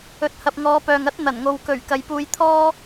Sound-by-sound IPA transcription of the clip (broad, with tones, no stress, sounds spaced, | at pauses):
ɵ˨˥ t̚ h ɐ˨ p̚ ŋ ɔː˨˧ p œː˨ ŋ ɐ˥ t̚ n̪ ɐ˨˩ n ŋ o˨ w k ɵ˨˩ ɥ k ɐ˨ j p uː˧ j t̪ʰ ɔː˥